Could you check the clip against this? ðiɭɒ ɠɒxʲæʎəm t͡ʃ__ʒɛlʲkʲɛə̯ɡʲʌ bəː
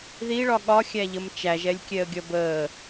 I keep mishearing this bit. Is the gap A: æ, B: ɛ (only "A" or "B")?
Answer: A